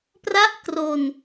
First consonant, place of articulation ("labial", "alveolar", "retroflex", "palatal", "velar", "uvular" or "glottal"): labial